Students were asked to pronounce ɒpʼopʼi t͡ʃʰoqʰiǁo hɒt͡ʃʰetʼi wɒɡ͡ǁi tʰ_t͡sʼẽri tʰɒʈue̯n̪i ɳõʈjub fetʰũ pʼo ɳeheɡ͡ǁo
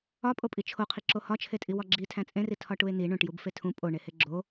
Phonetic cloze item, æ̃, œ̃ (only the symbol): æ̃